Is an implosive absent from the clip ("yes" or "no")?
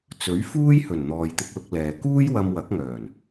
yes